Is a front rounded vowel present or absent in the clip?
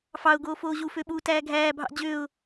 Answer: present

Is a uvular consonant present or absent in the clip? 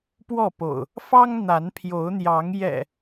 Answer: absent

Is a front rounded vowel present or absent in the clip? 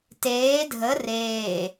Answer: absent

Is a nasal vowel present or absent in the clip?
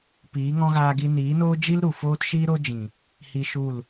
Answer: present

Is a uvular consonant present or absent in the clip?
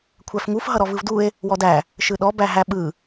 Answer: absent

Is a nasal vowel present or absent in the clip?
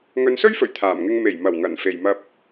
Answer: absent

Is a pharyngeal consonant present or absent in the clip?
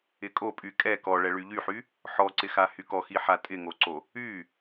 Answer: present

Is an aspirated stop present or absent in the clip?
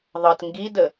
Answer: absent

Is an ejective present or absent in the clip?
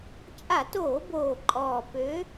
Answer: present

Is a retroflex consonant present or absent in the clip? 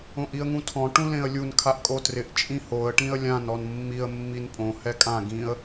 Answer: present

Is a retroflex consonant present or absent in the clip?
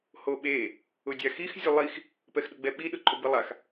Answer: absent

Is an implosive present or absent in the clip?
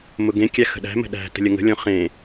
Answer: present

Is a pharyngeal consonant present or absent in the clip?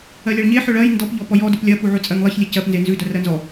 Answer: present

